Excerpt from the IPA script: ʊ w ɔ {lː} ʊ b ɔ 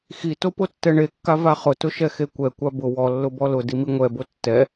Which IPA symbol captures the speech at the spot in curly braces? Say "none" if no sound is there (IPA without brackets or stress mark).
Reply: lː